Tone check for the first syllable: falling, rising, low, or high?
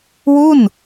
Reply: falling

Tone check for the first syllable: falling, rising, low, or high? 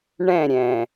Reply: falling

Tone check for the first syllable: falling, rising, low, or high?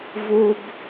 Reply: high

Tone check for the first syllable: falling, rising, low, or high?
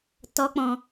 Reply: high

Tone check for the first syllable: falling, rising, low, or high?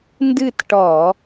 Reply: falling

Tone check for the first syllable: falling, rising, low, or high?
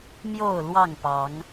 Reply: falling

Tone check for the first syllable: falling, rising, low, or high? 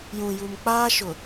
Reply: low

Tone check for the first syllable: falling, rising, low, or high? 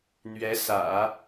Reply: rising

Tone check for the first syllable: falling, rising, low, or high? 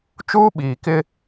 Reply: high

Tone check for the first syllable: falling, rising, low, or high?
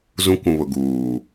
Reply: high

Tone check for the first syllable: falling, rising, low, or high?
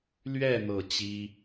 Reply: falling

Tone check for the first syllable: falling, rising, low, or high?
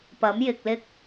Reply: rising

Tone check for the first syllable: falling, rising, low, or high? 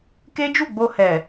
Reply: high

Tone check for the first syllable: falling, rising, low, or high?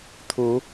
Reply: rising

